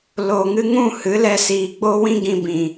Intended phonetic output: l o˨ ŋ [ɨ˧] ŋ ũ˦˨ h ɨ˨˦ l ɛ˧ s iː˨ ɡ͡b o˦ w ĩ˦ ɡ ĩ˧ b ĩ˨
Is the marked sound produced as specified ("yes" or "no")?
yes